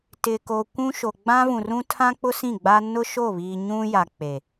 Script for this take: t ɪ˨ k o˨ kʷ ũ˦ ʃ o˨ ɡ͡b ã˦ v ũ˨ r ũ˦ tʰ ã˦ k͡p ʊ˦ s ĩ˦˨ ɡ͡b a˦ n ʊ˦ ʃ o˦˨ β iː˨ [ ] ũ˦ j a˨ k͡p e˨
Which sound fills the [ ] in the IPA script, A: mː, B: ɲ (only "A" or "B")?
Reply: B